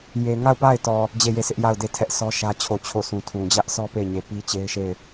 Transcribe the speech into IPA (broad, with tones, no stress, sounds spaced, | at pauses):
j e˨ ŋ a˦˨ ʊ̯ p a˦˨ ɪ̯ t ɔ˨ | d͡ʑ e˦˨ j e˦˨ sʰ ɪ˦ ʔ j a˦˨ ʊ̯ d e˦˨ tʰ ɛ˦ ʔ sʰ ɔ˦ ʃ ä˦ t͡ɕʰ o˦˨ t͡ɕʰ o˦˨ sʰ ũ˨ tʰ ũ˨ d͡ʑ ä˦ ʔ sʰ ɔ˦ p e˦˨ ɪ̯ ɲ e˨ p i˦ t͡ɕ e˦ ɪ̯ ʃ e˦˨ ɪ̯